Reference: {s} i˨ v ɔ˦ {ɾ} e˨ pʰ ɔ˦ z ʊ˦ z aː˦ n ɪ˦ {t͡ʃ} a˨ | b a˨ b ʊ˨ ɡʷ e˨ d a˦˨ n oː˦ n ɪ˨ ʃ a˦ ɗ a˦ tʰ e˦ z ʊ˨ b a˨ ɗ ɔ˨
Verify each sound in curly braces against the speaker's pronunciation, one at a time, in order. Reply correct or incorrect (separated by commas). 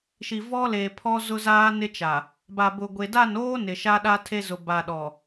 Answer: incorrect, incorrect, correct